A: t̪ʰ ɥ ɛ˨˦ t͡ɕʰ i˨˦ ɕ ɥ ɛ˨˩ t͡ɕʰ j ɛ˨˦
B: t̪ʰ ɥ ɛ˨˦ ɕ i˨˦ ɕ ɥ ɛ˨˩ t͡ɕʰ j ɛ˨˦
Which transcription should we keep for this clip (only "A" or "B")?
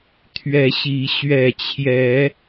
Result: B